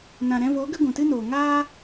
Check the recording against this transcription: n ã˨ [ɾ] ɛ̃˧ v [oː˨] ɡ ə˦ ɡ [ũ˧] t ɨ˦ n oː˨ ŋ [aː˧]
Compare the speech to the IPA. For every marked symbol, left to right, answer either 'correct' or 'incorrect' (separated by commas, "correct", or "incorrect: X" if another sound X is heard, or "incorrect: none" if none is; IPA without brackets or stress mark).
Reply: correct, incorrect: oː˨˦, incorrect: ũ˨, incorrect: aː˦